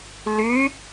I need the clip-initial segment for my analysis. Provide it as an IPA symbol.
l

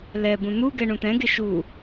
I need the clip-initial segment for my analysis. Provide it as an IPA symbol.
l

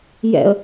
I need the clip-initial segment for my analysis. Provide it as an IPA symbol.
j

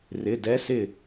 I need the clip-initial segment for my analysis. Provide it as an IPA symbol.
r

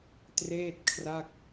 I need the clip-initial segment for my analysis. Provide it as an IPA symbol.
t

